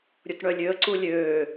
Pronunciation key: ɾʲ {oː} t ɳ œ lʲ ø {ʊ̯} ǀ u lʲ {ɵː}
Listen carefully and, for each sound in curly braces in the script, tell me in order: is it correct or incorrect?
incorrect: o, incorrect: ə̯, incorrect: øː

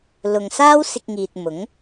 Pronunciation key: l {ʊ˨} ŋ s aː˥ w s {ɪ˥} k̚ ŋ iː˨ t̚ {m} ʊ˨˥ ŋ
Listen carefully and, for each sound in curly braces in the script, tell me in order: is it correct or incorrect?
correct, incorrect: ɪ˧, correct

